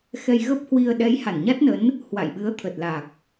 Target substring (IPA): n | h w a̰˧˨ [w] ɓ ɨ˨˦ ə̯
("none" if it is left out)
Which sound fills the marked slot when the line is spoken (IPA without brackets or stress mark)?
j